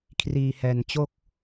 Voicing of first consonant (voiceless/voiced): voiceless